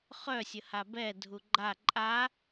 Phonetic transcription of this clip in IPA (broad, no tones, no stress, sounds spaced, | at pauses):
χ œ sʲ ə h a b ɛ dʱ u ɡ͡ǃ a ǃʼ a